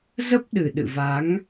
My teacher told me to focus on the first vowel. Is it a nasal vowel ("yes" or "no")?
no